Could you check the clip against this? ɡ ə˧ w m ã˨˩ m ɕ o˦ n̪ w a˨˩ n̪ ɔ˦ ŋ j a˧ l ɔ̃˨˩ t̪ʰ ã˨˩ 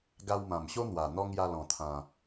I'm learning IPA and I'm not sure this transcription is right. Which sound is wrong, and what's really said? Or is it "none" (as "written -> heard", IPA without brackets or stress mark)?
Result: ə˧ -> a˧